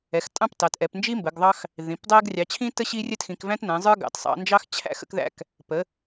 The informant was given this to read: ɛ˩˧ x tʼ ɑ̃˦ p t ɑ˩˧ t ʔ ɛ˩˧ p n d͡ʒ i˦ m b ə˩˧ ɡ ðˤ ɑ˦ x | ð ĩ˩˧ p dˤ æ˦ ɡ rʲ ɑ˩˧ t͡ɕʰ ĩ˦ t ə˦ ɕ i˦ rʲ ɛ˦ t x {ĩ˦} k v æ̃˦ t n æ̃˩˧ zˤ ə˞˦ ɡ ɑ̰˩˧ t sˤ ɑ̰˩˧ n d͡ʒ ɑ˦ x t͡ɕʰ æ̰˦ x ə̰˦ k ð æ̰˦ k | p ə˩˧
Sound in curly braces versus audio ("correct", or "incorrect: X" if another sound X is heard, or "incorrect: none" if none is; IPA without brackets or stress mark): incorrect: ĩ˩˧